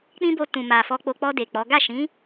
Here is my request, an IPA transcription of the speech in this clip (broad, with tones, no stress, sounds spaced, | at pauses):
k͡p ĩ˦ b o˧ t ũ˨ m a˨ f ɔ˧ k͡p o˧ k͡p ɔ˧ d e˨ k͡p ɔ˨˦ ɡ a˦˨ ʃ ĩ˨˦